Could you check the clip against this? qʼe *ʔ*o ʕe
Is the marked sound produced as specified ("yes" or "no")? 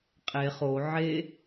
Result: no